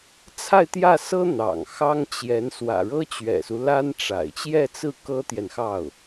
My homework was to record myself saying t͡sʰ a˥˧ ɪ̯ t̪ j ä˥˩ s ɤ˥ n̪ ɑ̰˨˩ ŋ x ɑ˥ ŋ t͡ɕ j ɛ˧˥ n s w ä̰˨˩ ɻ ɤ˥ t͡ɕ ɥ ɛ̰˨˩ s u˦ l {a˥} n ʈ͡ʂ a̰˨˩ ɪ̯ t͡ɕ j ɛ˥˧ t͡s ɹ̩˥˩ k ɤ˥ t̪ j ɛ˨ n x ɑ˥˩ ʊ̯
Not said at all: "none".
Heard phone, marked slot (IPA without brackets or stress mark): a˥